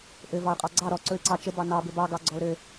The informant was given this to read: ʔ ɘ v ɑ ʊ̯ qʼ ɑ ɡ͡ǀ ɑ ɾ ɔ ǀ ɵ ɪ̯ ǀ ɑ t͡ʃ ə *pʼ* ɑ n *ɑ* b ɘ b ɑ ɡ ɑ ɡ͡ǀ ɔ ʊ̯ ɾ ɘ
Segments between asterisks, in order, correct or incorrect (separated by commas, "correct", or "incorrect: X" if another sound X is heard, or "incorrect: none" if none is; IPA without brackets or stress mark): incorrect: b, correct